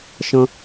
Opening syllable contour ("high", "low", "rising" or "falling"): high